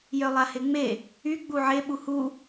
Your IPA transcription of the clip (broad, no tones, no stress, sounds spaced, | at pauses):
j œ lˠ a h e ŋ͡m e | y ɡ͡b u ʕ e ɓ u h u